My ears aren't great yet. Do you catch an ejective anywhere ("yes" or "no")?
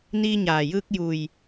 no